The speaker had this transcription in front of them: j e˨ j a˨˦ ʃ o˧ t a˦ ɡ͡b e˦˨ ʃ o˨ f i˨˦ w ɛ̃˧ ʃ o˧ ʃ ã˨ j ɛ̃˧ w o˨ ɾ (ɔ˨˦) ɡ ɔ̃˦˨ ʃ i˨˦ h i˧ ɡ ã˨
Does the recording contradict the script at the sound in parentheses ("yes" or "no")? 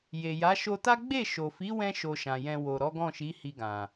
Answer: no